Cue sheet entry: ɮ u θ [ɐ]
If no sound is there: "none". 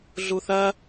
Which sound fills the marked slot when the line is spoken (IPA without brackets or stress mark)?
ɐ